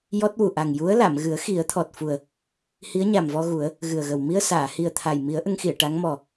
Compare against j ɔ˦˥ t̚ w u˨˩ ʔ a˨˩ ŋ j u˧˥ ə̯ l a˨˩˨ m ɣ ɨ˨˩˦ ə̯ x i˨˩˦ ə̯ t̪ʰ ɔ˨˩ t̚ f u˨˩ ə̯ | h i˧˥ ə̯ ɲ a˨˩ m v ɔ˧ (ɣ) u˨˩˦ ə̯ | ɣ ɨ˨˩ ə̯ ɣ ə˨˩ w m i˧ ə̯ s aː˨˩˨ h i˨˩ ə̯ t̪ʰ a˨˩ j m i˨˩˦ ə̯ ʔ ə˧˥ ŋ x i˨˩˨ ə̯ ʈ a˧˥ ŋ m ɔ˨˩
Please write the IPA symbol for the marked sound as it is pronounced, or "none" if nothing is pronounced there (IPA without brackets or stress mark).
ɣ